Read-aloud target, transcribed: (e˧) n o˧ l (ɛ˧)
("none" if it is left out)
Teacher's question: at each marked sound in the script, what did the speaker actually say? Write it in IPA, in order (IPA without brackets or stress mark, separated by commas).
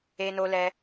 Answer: e˧, ɛ˧